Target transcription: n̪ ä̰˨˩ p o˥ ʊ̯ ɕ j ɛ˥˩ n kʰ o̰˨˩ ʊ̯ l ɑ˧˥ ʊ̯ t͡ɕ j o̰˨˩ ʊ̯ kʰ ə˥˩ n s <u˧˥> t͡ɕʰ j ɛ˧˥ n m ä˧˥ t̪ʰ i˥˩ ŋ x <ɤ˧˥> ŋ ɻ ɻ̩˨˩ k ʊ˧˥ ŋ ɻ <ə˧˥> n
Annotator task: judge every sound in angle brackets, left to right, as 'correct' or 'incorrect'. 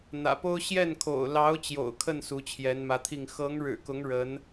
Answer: correct, correct, correct

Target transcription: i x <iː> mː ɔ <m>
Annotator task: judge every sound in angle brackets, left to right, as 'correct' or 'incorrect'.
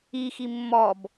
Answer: incorrect, incorrect

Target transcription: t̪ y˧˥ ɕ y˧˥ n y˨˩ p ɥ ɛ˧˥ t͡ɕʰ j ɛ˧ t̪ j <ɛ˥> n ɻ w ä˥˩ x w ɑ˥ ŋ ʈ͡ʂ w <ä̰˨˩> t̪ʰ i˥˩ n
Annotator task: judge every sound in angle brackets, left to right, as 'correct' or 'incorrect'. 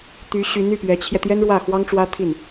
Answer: correct, incorrect

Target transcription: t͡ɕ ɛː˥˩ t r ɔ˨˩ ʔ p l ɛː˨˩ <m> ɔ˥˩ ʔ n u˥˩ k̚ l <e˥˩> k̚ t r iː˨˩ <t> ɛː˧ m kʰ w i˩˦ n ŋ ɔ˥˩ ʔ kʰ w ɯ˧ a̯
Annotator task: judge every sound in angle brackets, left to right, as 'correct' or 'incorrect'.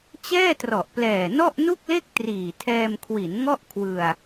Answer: incorrect, correct, incorrect

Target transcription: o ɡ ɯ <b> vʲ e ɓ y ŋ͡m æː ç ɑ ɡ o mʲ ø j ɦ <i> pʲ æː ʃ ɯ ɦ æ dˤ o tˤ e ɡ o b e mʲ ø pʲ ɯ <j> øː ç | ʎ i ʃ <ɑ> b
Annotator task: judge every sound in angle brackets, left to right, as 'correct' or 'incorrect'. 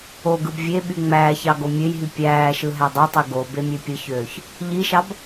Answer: correct, incorrect, incorrect, correct

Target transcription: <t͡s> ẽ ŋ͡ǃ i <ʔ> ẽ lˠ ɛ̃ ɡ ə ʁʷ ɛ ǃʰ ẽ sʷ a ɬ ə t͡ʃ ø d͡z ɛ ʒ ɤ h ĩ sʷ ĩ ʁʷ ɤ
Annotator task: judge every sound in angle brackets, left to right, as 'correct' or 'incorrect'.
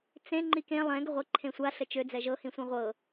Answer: correct, incorrect

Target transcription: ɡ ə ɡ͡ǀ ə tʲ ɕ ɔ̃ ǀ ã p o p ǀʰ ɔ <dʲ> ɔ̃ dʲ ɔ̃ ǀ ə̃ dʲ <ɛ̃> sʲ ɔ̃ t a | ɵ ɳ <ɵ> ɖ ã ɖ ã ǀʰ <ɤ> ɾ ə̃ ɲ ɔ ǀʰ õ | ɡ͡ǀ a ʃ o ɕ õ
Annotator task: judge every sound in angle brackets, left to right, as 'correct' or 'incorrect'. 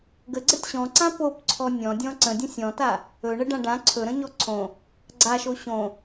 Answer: incorrect, incorrect, incorrect, incorrect

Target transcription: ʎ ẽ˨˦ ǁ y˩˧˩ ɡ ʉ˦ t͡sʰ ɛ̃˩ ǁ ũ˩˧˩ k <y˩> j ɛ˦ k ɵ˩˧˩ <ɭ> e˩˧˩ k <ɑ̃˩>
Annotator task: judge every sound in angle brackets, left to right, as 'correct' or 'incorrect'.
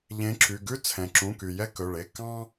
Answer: correct, correct, incorrect

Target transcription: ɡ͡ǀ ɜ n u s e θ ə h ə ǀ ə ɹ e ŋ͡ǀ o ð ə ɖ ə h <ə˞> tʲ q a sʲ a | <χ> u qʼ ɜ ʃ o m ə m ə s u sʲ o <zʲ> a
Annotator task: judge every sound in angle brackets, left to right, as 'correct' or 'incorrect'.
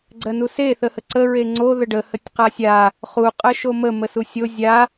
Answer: incorrect, correct, correct

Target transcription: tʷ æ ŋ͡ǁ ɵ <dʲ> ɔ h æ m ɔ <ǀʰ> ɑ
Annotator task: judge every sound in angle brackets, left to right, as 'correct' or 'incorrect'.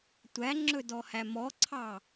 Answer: incorrect, correct

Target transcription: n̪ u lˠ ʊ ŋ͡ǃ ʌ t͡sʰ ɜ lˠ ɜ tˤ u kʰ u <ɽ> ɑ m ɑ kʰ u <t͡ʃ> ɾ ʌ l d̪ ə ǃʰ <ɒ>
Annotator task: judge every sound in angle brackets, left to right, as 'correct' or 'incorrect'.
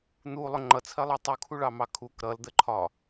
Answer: incorrect, incorrect, correct

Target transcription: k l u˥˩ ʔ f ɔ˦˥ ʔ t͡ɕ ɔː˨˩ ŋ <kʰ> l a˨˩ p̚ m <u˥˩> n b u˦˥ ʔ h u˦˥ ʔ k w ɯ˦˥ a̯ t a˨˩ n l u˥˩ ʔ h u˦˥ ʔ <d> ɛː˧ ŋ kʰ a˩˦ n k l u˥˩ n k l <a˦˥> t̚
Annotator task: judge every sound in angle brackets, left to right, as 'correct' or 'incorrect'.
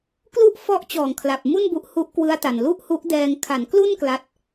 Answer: correct, correct, correct, correct

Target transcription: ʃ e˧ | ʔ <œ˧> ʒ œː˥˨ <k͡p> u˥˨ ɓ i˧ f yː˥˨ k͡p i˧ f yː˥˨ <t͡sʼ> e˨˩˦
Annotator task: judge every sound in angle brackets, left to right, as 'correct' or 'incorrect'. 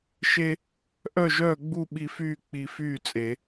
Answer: incorrect, incorrect, correct

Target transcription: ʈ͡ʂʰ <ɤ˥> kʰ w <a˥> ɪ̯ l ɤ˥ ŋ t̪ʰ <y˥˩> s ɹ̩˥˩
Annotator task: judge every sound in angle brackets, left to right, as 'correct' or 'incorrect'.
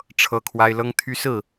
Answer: correct, correct, incorrect

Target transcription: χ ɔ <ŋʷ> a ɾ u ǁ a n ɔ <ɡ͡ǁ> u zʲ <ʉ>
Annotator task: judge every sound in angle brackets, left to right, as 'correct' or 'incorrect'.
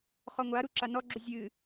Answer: correct, correct, incorrect

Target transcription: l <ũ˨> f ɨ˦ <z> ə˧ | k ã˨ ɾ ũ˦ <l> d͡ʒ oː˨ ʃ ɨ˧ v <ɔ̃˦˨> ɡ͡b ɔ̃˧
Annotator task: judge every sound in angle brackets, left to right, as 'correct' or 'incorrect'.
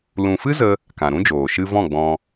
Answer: correct, correct, incorrect, correct

